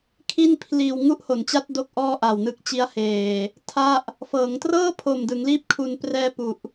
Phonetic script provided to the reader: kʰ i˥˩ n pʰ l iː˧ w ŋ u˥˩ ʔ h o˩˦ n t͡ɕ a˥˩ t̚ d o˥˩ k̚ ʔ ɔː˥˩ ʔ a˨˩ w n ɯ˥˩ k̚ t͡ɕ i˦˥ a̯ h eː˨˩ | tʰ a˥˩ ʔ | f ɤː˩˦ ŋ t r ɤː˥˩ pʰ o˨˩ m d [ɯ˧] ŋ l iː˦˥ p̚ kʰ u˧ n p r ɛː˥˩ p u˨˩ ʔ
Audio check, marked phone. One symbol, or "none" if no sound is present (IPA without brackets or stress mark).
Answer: ɯ˩˦